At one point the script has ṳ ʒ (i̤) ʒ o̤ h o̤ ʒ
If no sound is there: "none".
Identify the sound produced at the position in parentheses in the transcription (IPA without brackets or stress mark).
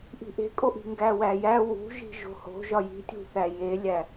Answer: i̤